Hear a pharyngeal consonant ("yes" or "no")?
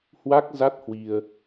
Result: no